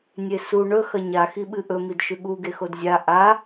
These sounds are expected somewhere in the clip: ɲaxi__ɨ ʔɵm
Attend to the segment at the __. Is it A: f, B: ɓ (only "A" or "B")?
B